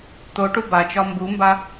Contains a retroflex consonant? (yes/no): yes